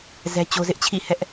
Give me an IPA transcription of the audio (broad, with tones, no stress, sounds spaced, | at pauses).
z ɛ˦ t͡ɕ o˦ z ɪ˦ ʔ t͡ɕʰ ḭ˦˨ h ɛ˦ ʔ